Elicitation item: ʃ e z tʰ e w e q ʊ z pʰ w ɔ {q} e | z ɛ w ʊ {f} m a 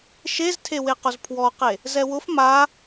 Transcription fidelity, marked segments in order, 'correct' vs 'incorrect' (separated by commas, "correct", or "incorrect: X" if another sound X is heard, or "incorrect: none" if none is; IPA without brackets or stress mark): correct, correct